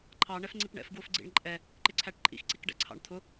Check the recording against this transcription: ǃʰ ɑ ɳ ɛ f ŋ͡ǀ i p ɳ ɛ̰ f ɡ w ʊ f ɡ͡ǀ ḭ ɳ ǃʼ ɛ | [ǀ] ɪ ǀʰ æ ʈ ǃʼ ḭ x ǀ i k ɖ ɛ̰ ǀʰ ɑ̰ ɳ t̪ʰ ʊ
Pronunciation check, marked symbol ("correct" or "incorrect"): incorrect